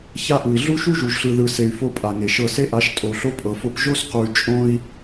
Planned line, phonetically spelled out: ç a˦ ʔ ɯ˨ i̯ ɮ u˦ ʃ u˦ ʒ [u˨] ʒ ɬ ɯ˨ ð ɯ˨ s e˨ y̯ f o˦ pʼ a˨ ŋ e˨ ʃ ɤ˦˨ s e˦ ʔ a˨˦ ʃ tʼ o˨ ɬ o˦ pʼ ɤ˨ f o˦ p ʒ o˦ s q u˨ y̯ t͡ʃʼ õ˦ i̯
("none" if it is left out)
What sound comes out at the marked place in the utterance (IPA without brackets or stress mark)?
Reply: u˨